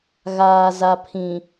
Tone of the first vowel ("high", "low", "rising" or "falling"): low